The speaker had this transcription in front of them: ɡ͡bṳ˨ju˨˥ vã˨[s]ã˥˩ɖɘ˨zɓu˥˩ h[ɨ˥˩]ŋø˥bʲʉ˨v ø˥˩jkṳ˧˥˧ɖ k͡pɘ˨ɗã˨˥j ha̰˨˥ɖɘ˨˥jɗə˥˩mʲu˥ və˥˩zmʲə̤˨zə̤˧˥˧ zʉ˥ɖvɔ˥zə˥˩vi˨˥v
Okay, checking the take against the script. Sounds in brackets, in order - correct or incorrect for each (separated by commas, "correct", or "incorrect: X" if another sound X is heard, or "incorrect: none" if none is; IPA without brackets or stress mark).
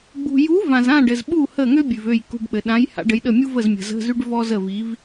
incorrect: z, incorrect: ə˥˩